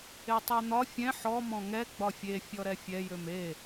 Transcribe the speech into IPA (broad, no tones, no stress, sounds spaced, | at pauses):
e tˤ ɛ n̪ ɒ fʲ ɛ̃ ħ ɔ m ɔ̃ ŋ ɛ ɡ͡b ɒ fʲ e fʲ ɔ ɾ ɛ fʲ ɛ j ø m e